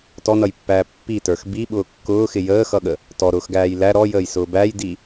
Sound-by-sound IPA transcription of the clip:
t ɔ n ʌ j pː æː pː i t ə˞ x b i ɓ ʊː kː ʊː x ɪ j əː x ʌ ɠ ə | t ɔ ɾ ʊː x ɡ æː j l æ ɾ ɔ j əː j s ʊː b æ j d i

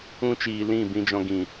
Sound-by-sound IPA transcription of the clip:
ũ˦ t͡ʃ iː˧ l ĩ˦˨ b ĩ˦ d͡ʒ ɔ̃˦ ɡ ĩ˦˨

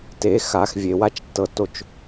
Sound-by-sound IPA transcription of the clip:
t e˨˩˦ x a˨˩˦ x vʲ e˨ w a˦˥ t͡ʃ tː ɤ˨ t o˦˨ t͡ʃ

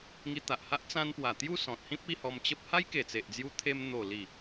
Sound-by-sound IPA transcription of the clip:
ŋ i˧ t̪ a˨ ʔ h a˦ ʔ t͡s ã˧ n p w a˨˩ t̪ j u˥˧ s ɔ̃˨ t̚ h ĩ˦ p̚ i˧ h ɔ˧ m t͡ɕ ə˦ p̚ h a˦ j k e˨˩ t͡s e˨ ʔ d͡z j u˧ t̪ʰ e˧ m n̪ o˨˩ l i˨˩

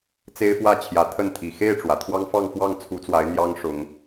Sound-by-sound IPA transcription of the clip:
t͡s e˦ ɪ̯ f w ä˥˨ t͡ɕʰ j ä˨˦ t̪ʰ ə˥˨ n t̪ʰ i˨˩ x e˥˨ ɪ̯ ʈ͡ʂ w ä˩ t̪ʰ w ɑ˦ ŋ f ɑ˥˨ ŋ f w ɑ˥˨ ŋ t͡sʰ u˨˦ t͡s w a˨˦ ɪ̯ n̪ j ɑ˦ ŋ ʂ ʊ˨˦ ŋ

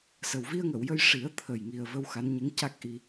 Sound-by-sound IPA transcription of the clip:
s ə˨˩ w v i˧ ə̯ ŋ ə˨˩˨ w j ə˧ j ʂ i˨˩˦ ə̯ t̪ʰ ə˨˩ j ŋ i˨˩ ə̯ v ə˧ w x a˧˥ n ɲ ɨ˧˥ ŋ c a˦˥ k̚ ʔ i˧

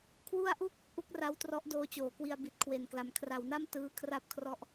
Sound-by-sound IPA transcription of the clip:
kʰ w u˧ a̯ ʔ u˦˥ k̚ | ʔ u˦˥ k̚ r a˦˥ w t r ɔ˦˥ ʔ d oː˧ t͡ɕ oː˩˦ k w i˧ a̯ b i˨˩ t̚ kʰ w e˨˩ n k l a˩˦ m kʰ r a˩˦ w n a˥˩ m t ɯː˦˥ kʰ r a˥˩ p̚ kʰ r ɔ˥˩ ʔ

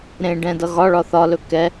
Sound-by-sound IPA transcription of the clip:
ɾ ẽ ɖ ɛ̃ d ʌ ɣ ɒ ɭ ɒ θ ɒ l ɵ k ɛ

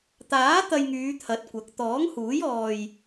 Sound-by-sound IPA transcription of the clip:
t̪ aː˨˥ t̪ ɐ˧ j ŋ yː˨˧ t̪ʰ ɐ˨˥ t̚ kʷ ɐ˨˥ k̚ t̪ ɔː˨˥ ŋ h uː˨˥ j ɔː˨ j

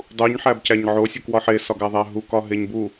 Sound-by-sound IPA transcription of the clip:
dˤ u ɲ ħ æ b c æ ɲ ʕ o sʲ o k w ɒ ħ e s ɒ ɡ æ ðˤ æ ɦ u k ɒ ɦ e ɲ b u

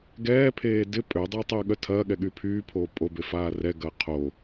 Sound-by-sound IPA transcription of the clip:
ɡ ɛː pʰ eː d ɪ pʼ ø dˤ a tˤ eː ɠ œ tʰ ɐː ɠ ɛ ɠ y pʰ yː pʰ oː pʼ o b e f aː r ɛ ɡ ɐː qʰ o

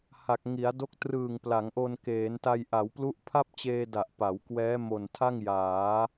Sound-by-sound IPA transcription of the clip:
h a˨˩ k̚ ŋ i˩˦ a̯ d o˦˥ k̚ t r ɯː˨˩ ŋ p l a˩˦ ŋ ʔ o˧ n k eː˩˦ n t a˧ j ʔ a˩˦ w p l u˦˥ ʔ pʰ a˥˩ p̚ t͡ɕ eː˧ d a˨˩ ʔ p a˩˦ w k w ɛː˦˥ m o˨˩ n tʰ a˥˩ ŋ j aː˩˦

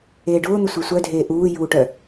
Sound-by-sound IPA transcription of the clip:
eː ɖ ʊː n̪ ɪ sʷ i sʷ œ dʱ eː ʔ uː j uː ʈ œ

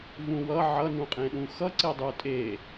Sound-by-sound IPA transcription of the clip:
v ũ w ʌ ʕ ʌ n ũ qʼ ẽ ɗ ũ x ʌ ǀ e dˤ u tʼ e

